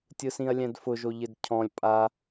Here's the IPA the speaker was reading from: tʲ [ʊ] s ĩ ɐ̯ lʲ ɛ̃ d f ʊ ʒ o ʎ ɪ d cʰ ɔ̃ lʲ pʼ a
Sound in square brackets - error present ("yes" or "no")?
yes